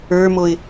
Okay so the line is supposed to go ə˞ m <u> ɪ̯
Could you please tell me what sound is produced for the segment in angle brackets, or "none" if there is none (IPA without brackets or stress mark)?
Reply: o